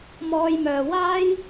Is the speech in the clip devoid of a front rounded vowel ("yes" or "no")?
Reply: no